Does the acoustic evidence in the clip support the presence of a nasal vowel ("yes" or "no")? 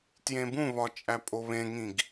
yes